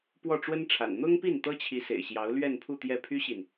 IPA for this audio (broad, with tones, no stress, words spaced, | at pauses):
pwɔ˥˩ʈ͡ʂwə˥nʈ͡ʂʰa̰˨˩n n̪ʊ˥ŋpi˥˩n t̪ɤ˥t͡ɕʰi˧˥sḛ˨˩ɪ̯ɕjɑ˧˥ʊ̯ lɥɛ˥˧npʰu˥˧t̪jɛ˥˩ pʰy˥ɕi˨n